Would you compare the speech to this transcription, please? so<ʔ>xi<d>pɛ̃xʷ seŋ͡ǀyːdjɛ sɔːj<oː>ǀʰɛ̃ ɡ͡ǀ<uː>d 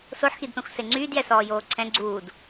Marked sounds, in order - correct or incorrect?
incorrect, correct, correct, correct

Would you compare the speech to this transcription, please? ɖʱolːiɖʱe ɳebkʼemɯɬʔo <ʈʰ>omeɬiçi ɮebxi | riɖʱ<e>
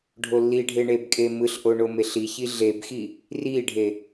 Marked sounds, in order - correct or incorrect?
incorrect, correct

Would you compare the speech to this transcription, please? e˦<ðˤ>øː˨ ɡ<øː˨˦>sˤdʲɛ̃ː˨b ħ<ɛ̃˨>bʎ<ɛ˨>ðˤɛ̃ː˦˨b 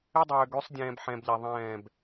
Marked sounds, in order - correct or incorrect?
incorrect, incorrect, correct, correct

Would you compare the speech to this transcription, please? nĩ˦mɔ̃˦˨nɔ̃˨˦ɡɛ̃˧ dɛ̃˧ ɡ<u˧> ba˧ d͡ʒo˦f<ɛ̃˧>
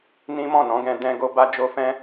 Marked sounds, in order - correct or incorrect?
incorrect, incorrect

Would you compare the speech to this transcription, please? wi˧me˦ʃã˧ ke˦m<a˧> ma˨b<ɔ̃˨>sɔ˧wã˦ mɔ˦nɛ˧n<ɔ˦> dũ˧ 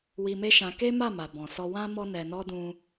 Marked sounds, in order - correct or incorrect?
incorrect, correct, correct

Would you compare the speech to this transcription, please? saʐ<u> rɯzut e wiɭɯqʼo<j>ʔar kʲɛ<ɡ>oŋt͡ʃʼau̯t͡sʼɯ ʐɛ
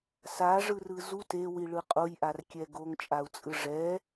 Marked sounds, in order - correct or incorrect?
incorrect, correct, correct

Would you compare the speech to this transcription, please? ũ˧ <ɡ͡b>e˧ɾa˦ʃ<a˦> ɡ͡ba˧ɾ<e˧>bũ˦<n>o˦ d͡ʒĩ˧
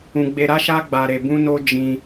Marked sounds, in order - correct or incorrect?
correct, correct, correct, correct

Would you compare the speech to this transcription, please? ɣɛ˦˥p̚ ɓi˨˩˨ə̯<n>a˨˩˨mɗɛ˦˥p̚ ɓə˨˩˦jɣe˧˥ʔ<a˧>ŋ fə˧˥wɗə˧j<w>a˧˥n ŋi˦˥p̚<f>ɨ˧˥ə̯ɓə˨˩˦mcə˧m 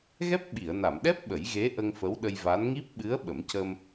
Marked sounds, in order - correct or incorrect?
correct, incorrect, incorrect, incorrect

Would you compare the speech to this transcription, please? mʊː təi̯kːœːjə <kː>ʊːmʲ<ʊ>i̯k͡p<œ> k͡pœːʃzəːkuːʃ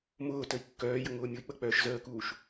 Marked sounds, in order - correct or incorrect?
incorrect, correct, incorrect

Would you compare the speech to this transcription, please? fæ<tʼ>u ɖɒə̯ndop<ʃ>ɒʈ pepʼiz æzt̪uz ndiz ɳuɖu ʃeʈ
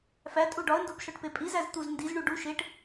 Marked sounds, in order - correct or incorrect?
correct, correct

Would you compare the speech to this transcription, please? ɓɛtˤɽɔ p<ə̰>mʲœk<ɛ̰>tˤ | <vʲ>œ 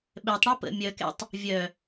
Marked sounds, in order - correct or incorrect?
correct, correct, correct

